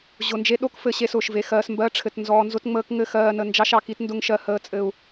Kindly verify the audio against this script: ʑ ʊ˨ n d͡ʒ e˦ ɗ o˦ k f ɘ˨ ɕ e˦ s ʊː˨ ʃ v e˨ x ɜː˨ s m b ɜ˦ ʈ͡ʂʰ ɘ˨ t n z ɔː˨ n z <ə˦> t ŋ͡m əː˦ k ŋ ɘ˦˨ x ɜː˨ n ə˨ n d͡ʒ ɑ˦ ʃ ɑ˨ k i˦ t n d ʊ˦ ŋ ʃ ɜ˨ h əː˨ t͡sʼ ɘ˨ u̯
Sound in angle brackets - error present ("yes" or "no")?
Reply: yes